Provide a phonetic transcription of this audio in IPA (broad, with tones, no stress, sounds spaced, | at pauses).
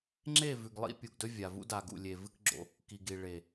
ŋ͡ǁ e˦˨ v ʉ˨ ɡ lˠ ḭ˦ pʲ u˨ ɡ d ɵ˦ vʲ a˨ v ṵ˦ d a˨ ɡ ṵ˨ lʲ e˨ v ɨ˦ k ɡ͡ǁ o̰˨ | k i˨ ɡ i˨ ɭ e˨